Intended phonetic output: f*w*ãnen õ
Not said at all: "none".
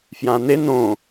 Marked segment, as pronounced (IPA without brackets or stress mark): j